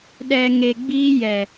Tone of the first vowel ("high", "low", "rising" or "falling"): low